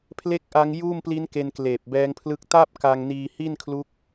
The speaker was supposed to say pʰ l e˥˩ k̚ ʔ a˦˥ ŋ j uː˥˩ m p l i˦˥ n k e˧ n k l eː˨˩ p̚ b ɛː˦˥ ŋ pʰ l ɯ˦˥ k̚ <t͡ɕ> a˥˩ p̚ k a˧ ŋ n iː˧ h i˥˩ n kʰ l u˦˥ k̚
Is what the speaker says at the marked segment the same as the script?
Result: no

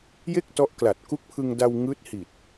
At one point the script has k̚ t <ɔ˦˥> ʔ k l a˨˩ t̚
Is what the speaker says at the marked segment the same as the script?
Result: yes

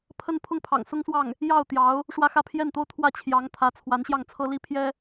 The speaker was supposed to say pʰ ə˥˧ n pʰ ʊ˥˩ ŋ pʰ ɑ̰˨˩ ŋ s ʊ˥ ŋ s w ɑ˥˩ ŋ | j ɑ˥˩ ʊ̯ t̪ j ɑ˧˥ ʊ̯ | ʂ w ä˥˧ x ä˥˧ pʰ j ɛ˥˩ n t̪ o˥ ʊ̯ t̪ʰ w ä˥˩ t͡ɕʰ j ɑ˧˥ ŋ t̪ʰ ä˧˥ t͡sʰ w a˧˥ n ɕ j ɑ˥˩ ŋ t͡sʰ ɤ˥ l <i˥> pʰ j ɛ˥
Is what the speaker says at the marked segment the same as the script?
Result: yes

